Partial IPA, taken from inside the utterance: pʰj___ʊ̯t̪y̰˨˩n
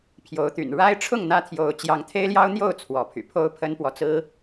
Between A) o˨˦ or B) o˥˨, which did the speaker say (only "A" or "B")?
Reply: A